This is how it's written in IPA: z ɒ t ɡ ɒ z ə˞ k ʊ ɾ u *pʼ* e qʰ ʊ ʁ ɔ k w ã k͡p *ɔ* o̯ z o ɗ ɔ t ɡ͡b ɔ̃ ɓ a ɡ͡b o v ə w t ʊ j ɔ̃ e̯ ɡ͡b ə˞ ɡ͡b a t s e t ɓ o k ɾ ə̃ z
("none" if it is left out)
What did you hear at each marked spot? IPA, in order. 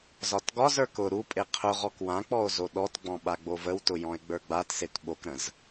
pʼ, ɔ

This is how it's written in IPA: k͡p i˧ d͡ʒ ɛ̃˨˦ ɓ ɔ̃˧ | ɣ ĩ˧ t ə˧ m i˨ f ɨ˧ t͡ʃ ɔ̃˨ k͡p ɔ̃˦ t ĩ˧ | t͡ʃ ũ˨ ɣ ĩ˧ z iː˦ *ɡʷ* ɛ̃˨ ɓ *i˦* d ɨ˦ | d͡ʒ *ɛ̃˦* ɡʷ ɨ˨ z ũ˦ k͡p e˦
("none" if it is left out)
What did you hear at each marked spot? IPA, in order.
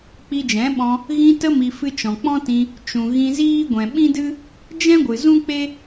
ɡʷ, ĩ˦, ɛ̃˦

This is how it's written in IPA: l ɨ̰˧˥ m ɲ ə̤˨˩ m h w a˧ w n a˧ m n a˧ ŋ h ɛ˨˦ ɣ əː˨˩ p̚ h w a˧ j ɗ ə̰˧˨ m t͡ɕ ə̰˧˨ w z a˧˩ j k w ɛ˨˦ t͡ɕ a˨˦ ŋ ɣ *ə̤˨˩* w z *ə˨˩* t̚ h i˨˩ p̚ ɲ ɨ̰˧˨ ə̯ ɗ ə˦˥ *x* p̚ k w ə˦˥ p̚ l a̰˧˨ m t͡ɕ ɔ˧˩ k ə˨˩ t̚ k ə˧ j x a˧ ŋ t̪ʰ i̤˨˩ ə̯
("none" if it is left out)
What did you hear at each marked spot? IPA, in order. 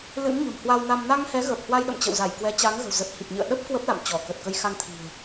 ə̤˨˩, ə˨˩, none

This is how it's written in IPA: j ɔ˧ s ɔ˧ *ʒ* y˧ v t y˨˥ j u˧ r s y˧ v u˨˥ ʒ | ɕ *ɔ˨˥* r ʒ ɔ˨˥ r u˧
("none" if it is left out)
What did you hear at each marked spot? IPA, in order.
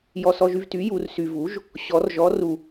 ʒ, ɔ˨˥

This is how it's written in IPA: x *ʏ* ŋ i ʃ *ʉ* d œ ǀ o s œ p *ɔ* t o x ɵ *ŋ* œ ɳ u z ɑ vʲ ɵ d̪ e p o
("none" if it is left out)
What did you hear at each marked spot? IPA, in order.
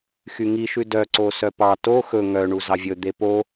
y, ʉ, ɑ, ŋ

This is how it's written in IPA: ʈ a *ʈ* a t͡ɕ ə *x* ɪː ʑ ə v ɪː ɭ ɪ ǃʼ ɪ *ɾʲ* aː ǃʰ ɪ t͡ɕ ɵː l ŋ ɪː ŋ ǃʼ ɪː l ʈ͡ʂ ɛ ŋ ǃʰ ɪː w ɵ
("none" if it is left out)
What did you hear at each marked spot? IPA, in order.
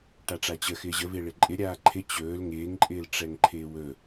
ʈ͡ʂ, x, ɾʲ

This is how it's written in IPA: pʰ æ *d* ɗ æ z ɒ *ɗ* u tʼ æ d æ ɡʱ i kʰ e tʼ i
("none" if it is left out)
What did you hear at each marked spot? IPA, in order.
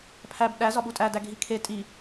b, ɓ

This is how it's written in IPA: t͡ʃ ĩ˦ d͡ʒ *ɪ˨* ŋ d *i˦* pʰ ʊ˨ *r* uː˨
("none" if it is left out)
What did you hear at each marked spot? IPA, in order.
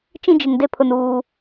ɪ˨, e˦, n

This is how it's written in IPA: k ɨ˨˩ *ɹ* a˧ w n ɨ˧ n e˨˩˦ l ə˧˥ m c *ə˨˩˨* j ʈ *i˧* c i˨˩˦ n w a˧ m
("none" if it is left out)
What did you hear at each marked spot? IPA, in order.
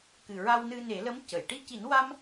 ɹ, ə˨˩˨, i˧

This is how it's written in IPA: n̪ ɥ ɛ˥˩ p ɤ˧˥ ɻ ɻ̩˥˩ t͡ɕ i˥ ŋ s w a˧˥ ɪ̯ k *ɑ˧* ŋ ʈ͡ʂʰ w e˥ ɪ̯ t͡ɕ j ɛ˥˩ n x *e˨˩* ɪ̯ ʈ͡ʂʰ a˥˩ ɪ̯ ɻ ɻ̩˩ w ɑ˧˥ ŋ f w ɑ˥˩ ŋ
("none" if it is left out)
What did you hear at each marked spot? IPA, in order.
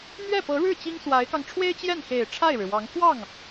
ɑ˧, e˨˩

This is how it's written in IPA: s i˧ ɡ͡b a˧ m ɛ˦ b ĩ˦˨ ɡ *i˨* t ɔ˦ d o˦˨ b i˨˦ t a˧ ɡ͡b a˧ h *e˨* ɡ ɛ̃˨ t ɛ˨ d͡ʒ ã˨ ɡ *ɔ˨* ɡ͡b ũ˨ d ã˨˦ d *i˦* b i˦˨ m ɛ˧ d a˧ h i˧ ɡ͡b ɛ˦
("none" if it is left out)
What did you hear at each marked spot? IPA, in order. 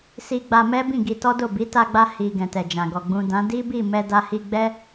i˧, i˨, ɔ˨, i˦

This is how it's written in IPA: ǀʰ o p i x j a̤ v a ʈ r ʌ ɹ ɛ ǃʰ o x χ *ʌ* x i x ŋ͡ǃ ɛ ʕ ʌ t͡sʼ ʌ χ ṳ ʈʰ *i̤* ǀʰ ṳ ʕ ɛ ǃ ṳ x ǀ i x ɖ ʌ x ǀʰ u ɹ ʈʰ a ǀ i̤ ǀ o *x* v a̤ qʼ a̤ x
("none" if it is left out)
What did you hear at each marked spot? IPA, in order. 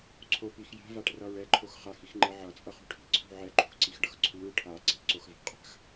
a, i̤, x

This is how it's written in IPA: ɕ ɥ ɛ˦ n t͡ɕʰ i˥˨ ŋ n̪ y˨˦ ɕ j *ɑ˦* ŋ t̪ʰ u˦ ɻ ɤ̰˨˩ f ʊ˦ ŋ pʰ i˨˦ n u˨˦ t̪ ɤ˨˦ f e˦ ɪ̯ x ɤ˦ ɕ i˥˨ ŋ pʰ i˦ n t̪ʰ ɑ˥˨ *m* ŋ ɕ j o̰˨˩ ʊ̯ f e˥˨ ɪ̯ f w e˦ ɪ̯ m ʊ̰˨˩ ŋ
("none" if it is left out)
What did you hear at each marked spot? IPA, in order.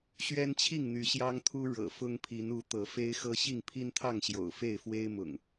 ɑ˦, none

